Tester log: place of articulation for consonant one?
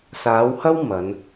alveolar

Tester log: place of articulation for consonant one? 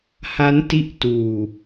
glottal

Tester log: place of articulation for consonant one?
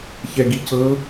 palatal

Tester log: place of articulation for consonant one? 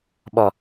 labial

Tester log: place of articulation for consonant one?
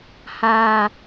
glottal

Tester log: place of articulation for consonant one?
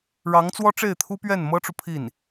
retroflex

